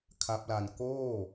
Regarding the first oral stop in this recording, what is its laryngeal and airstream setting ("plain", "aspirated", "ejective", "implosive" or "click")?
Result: aspirated